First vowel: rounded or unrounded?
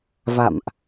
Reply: unrounded